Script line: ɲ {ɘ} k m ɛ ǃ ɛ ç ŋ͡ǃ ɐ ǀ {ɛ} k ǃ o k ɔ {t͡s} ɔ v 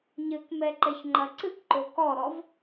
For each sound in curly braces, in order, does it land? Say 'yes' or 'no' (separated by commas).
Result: yes, no, no